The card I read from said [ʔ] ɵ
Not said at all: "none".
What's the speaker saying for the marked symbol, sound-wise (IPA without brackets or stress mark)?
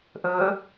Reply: ʔ